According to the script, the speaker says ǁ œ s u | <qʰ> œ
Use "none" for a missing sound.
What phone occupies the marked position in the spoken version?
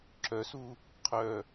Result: qʰ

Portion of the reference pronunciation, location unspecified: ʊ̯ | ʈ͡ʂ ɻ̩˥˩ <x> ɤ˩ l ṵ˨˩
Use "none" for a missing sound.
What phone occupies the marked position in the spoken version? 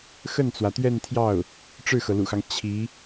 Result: x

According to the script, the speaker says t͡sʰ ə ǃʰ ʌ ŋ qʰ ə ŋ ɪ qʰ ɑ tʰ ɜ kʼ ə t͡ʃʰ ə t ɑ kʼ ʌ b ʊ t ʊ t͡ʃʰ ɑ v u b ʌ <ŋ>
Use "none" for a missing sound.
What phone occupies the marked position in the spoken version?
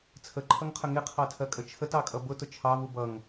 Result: ŋ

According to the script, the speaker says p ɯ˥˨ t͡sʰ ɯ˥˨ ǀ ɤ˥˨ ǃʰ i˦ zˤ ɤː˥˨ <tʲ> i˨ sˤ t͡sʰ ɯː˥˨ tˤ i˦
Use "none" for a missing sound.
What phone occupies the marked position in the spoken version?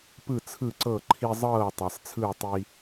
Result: tˤ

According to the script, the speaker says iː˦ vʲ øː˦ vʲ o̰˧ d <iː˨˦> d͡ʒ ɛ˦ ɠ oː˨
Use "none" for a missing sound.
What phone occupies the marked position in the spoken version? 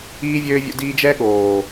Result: iː˧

